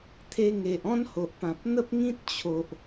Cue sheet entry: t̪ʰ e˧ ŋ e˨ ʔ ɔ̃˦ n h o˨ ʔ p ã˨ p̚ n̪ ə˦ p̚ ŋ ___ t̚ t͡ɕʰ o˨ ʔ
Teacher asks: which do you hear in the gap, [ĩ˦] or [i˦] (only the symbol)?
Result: ĩ˦